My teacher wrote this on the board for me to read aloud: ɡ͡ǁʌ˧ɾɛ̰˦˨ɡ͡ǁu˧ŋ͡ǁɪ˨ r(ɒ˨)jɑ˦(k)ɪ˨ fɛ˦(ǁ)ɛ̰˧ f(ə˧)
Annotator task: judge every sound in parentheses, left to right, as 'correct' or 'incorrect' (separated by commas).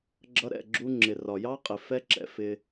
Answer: correct, incorrect, correct, incorrect